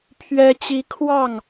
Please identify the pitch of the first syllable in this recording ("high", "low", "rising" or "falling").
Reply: high